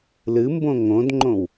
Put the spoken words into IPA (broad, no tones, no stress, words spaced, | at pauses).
lɨmbõ ŋõdŋ͡ǃõw